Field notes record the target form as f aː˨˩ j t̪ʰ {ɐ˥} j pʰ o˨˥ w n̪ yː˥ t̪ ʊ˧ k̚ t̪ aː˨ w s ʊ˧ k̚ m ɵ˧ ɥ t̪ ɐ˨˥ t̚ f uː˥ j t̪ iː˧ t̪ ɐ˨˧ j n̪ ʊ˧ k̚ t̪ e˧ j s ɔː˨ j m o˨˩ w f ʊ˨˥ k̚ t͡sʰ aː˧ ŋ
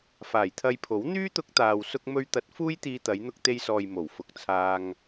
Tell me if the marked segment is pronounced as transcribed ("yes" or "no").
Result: no